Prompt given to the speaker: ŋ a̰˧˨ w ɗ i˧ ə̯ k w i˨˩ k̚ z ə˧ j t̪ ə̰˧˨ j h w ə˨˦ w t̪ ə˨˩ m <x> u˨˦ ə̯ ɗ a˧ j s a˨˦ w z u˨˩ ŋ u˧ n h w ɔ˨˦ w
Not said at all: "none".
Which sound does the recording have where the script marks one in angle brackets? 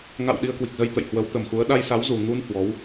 x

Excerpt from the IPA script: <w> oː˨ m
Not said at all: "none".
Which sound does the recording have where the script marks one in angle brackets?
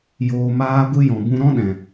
j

